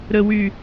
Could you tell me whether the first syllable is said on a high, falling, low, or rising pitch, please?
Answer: low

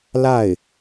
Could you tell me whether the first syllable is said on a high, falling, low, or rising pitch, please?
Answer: falling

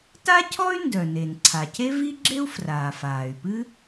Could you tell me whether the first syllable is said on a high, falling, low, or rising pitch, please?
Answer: high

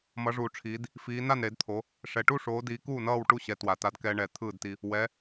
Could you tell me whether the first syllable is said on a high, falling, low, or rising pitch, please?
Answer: rising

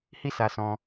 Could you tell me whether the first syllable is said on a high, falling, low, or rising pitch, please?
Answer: high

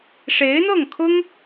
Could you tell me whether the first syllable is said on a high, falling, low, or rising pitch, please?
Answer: rising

